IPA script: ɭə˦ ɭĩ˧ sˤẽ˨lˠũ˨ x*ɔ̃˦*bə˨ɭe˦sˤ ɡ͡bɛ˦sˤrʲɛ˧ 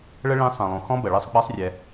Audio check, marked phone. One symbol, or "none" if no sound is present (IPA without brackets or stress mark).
ɔ̃˦